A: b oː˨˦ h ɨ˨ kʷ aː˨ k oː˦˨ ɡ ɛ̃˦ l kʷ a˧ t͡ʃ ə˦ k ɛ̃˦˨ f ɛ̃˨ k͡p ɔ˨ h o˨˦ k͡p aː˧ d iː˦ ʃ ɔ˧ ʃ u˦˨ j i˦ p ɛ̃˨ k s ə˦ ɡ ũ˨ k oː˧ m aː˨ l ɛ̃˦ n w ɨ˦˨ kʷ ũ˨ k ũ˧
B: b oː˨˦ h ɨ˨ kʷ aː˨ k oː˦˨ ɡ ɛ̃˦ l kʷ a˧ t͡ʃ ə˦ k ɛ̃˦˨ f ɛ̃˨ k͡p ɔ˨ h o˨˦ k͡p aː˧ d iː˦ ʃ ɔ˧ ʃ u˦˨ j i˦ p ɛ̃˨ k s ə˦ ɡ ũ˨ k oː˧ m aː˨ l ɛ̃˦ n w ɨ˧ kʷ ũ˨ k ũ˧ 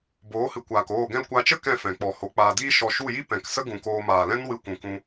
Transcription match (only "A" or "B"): B